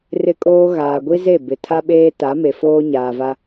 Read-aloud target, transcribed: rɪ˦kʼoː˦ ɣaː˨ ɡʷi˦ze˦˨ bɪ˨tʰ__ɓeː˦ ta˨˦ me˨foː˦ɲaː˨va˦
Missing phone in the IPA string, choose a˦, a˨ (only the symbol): a˦